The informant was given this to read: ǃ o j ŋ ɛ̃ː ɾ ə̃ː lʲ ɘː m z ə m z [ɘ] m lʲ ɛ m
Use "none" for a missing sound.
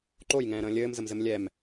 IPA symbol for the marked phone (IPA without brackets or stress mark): ɘ